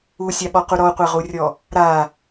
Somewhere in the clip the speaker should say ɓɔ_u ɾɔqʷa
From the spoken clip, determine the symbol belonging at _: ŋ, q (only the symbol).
q